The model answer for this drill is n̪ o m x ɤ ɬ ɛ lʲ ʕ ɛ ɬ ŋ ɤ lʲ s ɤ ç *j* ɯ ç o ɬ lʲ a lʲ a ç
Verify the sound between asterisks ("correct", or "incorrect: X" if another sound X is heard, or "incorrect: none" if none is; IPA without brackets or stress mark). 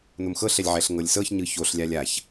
incorrect: ɲ